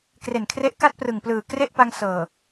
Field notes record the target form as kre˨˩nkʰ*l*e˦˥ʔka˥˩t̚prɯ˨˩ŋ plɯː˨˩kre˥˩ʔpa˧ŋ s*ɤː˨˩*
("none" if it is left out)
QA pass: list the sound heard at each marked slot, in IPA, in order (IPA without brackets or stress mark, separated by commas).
r, ɤː˨˩